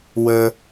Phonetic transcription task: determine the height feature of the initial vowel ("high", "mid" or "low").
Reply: mid